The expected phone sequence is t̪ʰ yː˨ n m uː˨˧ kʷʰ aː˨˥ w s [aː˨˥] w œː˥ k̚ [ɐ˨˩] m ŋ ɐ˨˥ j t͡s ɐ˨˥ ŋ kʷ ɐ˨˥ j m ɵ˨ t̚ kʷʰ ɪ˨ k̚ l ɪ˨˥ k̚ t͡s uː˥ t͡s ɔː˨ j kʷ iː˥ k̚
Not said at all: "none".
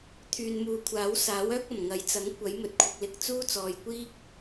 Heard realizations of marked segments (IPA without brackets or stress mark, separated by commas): aː˨˥, ɐ˨˩